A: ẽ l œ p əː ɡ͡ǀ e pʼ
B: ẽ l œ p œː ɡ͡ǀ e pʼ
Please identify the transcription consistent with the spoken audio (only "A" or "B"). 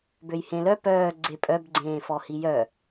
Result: B